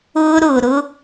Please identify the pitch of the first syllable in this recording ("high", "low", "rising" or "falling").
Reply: high